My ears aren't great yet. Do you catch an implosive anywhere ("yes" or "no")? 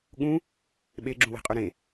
yes